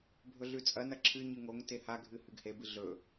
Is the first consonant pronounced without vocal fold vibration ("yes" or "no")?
no